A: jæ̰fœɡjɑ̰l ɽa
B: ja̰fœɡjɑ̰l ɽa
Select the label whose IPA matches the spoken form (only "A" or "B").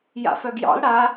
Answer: B